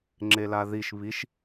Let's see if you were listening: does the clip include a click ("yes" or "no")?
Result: yes